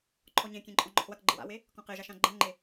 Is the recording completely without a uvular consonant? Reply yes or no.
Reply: no